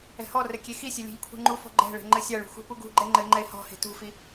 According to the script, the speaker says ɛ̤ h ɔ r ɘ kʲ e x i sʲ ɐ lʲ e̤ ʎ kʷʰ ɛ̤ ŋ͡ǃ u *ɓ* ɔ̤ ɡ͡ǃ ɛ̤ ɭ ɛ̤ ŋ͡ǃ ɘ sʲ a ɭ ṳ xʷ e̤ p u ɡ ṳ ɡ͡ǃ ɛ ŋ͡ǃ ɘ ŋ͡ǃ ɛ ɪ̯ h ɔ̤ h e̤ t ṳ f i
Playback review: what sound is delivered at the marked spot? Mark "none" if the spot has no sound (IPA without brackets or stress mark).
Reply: f